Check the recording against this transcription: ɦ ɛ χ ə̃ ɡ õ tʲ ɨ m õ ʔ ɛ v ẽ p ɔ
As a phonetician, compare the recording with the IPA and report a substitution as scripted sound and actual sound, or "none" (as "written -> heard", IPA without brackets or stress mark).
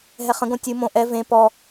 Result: none